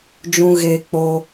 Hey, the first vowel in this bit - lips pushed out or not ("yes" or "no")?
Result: yes